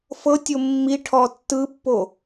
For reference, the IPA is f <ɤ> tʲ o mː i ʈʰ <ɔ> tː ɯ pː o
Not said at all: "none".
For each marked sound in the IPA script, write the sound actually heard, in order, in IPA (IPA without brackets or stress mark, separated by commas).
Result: ɤ, ɔ